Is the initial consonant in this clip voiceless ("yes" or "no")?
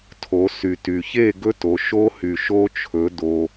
yes